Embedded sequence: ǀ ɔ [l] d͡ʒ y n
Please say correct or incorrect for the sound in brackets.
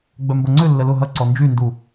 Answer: incorrect